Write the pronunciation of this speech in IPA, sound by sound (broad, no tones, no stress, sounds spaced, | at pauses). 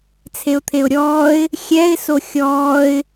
t͡sʰ e ʊ̯ t̪ʰ e ʊ̯ ɾʲ ɔː ɪ̯ | xʲ ɛ ɪ̯ s o xʲ ɔː ɪ̯